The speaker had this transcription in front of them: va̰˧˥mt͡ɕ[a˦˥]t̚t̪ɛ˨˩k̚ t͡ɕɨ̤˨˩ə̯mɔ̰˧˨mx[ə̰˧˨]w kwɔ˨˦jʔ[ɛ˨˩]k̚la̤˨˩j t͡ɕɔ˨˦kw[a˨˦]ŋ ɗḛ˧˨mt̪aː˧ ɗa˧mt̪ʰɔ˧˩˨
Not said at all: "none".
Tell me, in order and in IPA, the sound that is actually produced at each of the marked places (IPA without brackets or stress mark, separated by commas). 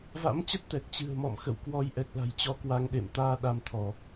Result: ə˦˥, ə̰˧˨, ɛ˨˩, a˧